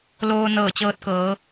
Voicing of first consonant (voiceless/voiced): voiced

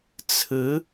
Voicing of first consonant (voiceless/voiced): voiceless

